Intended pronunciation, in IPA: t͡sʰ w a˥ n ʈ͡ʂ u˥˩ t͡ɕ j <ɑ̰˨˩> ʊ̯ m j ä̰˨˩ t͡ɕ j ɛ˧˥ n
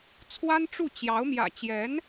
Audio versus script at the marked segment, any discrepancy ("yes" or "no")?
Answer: yes